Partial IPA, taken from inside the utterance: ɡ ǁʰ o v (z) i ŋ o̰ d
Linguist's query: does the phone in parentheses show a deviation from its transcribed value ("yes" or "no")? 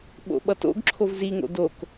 no